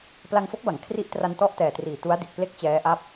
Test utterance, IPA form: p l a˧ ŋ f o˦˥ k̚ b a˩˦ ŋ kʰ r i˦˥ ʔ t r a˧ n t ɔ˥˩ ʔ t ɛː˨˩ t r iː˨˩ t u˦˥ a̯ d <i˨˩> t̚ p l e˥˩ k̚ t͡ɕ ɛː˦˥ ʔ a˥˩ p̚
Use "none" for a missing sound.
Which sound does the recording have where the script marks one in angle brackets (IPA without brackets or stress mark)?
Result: i˨˩